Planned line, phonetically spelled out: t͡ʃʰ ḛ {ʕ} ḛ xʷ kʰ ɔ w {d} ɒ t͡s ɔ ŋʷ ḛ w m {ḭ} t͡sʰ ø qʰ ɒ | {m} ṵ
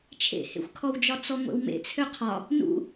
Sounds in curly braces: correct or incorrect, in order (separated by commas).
incorrect, incorrect, incorrect, incorrect